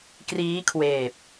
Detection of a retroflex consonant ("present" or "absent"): absent